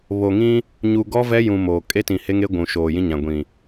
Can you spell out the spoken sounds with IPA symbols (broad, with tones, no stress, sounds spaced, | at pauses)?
β o˨ ŋ ĩ˦ | ɲ u˨ ɡ ɔ˦ v ɛ˦ j ũ˨ m oː˨ kʼ e˦ t ĩ˨ h e˦ ŋ e˦ ɡʷ ũ˨ ʃ oː˨ j ĩ˦ ɲ ã˨ ɡʷ ĩ˨